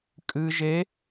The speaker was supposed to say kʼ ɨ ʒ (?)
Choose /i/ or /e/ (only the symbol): e